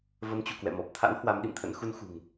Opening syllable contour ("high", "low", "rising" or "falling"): rising